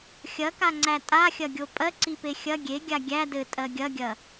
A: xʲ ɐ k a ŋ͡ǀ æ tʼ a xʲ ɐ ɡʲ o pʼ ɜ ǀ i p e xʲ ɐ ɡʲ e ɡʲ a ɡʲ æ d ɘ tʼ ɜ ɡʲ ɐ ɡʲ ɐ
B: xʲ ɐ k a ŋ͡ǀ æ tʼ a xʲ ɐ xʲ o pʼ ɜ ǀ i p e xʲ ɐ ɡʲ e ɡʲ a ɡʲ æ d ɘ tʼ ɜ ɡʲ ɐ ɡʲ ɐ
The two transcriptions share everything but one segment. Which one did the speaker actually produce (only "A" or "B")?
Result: A